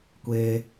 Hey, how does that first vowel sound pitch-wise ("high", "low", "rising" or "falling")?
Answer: high